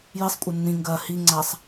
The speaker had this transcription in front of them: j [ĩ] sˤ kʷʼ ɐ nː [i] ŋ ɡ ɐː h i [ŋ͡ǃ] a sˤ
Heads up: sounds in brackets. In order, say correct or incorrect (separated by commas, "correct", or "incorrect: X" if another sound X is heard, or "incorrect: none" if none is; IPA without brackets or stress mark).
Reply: incorrect: i, incorrect: ĩ, incorrect: ŋ͡ǀ